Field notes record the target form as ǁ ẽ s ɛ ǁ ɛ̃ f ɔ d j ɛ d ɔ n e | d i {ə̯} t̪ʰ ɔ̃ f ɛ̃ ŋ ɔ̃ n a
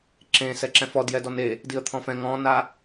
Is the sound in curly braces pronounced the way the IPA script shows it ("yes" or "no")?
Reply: yes